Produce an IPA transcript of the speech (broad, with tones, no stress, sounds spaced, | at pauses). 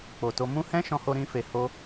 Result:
k͡p o˨ t o˧ m ũ˦ h ɛ̃˦ ʃ ɔ̃˦ h o˦ ɾ ĩ˦ f e˧ h o˦